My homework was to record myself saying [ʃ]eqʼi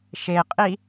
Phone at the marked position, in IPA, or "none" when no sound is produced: ʃ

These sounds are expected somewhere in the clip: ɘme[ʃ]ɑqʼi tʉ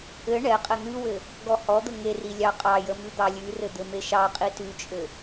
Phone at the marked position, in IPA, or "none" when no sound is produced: ʃ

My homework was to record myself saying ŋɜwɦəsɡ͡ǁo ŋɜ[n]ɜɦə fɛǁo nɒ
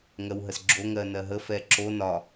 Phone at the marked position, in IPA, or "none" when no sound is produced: n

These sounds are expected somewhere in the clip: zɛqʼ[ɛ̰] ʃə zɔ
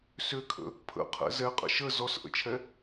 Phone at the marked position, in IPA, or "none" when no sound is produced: ə̰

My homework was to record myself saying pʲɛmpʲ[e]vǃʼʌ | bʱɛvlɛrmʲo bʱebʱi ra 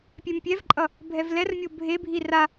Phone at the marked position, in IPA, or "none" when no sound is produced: ɛ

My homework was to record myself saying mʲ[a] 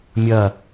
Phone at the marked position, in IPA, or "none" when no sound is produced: ɐ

